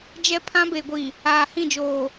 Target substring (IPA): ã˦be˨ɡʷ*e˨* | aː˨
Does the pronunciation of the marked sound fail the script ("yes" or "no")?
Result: yes